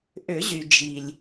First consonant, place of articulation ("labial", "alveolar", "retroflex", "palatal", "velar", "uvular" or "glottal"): glottal